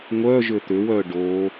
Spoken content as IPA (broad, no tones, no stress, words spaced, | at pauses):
ŋʷœ ʒʏt̪ʏwœ ɖo